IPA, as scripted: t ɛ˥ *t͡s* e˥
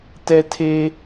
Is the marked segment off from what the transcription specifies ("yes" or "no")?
yes